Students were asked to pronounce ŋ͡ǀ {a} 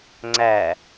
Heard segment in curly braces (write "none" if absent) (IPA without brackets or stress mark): æ